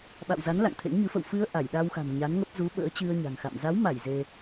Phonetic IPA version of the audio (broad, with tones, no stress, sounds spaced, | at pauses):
ɓ a̰˧˨ w z a˨˦ n l a̰˧˨ ŋ t̪ʰ ḛ˧˥ ŋ ɲ ɨ˨˦ f ə̰˧˨ w f ɨ˧ ə̯ ʔ a˧˩ j ɗ a˧ w x a̤˨˩ m ɲ a˨˦ n ŋ ə˦˥ p̚ z u˨˦ ɓ ə̰ː˧˥ t͡ɕ ɨ˧ ə̯ ɲ a̤˨˩ ŋ x a̰˧˨ m z a˨˦ w m a˧˩ j z e˧